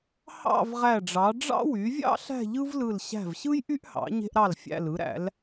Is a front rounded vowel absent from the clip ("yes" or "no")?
no